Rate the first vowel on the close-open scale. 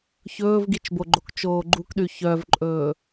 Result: mid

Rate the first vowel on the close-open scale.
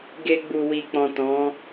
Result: mid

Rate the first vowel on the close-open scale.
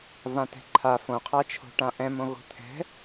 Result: open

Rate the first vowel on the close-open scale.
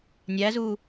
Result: open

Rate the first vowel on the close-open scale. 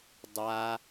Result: open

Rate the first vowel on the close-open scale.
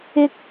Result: close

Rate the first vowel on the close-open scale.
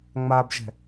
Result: open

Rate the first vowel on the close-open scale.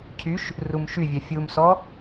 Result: close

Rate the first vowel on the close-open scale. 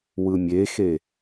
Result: close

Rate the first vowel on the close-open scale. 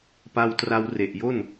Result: open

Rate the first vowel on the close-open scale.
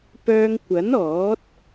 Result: mid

